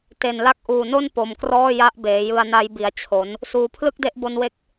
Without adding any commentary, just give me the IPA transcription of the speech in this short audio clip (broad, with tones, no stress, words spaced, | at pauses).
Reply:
te˨˩nla˦˥k̚ʔuː˨˩no˥˩n po˨˩mkrɔː˥˩ ja˦˥ʔbeː˩˦jɯ˧a̯na˦˥j bi˨˩a̯t͡ɕʰo˩˦n | suː˨˩ pʰlɯ˥˩k̚de˦˥ʔbo˧nwe˦˥k̚